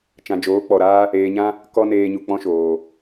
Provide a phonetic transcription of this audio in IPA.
t͡ʃ ã˨ d͡ʒ oː˨˦ k͡p ɔ˨ ɾ aː˦ | eː˨ ɲ ã˦ | k ɔ˧ n eː˧ ɲ u˨ k͡p ɔ̃˦ ʃ oː˨

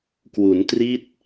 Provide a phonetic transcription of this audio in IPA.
k w u˩˦ n t r i˦˥ t̚

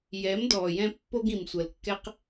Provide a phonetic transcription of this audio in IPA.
j ɛ˨˦ m d ɔː˨ j ɛ̃˧ pː o˦ ɡ ĩ˨ m sʷ ɜ˨ l kː ɛ˦ q

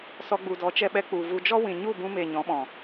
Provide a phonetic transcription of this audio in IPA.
s ɔ˧ ɡ͡b u˨ d ɔ˨˦ t͡ʃ ɛ˧ ɓ ɛ˧ k͡p u˨ v u˧ d͡ʒ ɔ˦ w ĩ˨ ɲ u˦˨ b ũ˧ m e˨ ɲ ɔ̃˨˦ ɓ ɔ̃˨

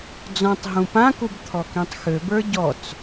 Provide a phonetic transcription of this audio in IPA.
d͡z ɔ̃ tˤ ɦ ũ p ã k u b t̪ʰ ɔ k ĩ tˤ x ø b ə˞ ɟ ɔ t͡s

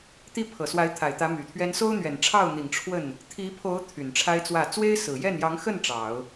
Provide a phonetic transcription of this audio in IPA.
t̪ i˥ pʰ ɤ˨˩ s w a˧˥ ɪ̯ t̪ʰ a˨˩ ɪ̯ t̪ ä˧˥ m y˨˩ t̪ʰ ɥ ɛ˥ n s o˥ ʊ̯ n̪ ɥ ɛ˨˩ n ʈ͡ʂʰ ɑ˥˩ ʊ̯ n̪ i˨˩ ŋ ʈ͡ʂʰ w ə˥˩ n | t̪ʰ i˧˥ pʰ o˧˥ ʊ̯ t̪ʰ y˨˩ n ʈ͡ʂʰ a˥ ɪ̯ t͡s w ä˥˩ t͡s w e˥ ɪ̯ s ɹ̩˨˩ j ɛ˥˩ n j ɑ˧˥ ŋ x ə˥˩ n ʈ͡ʂ ɑ˨˩˦ ʊ̯

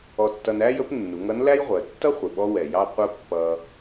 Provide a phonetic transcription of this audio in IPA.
ɔ˧ tː ʌ˧ n æ˥ j ə˧˥ p nː u˩˧ ŋ ʌ˧˥ n l æ˥ j ʁʷ ɜ˩˧ tː ʌ˥ χʷ ɪ˩ ɓ ɔ˧ w ɛ˩ j ɑ˧ qʷ ə˧ pː ʌ˧

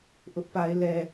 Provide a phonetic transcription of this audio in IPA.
ʔ ʊ˦ ʔ p a˦ ɪ̯ l ɛ˦

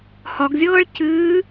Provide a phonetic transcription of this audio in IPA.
h ɒ ɡ zʲ ɤː ɭ c ɨː

